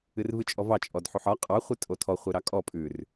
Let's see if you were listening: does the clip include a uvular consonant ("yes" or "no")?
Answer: yes